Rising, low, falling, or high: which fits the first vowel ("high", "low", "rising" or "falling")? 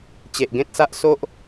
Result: low